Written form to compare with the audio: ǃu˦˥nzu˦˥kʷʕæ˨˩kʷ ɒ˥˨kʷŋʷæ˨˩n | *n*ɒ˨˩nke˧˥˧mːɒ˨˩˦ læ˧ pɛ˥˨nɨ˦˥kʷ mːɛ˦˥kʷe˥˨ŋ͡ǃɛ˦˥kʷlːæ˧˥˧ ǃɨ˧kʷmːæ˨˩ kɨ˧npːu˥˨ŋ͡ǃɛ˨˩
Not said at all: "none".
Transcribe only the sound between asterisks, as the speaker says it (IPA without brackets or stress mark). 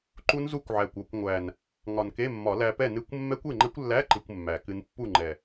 ŋ